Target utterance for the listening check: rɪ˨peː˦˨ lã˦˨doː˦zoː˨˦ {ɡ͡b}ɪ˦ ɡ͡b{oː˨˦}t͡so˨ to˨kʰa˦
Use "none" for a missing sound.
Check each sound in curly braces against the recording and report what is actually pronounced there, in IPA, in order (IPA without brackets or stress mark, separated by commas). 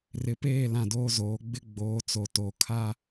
ɡ͡b, oː˨˦